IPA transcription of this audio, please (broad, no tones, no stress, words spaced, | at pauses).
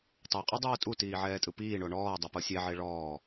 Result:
tˤaqʼudˤɯː tʼutiːʕɛːtʼɯ piːɳo ɳɔːdˤipɤ sʲeʕe ɭɔː